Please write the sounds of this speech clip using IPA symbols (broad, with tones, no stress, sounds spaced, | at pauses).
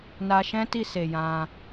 n a˧ ʃ ɛ̃˦ t i˦˨ s e˨ j ã˧